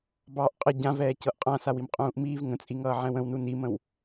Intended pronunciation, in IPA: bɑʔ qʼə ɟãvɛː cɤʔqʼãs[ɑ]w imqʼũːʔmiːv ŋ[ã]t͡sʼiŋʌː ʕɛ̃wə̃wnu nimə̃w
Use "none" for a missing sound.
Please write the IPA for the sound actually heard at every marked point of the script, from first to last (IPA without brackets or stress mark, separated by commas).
a, ə̃